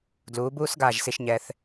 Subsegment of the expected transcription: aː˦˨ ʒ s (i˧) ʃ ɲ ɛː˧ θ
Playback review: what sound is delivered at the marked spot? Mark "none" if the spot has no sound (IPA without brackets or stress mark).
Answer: i˧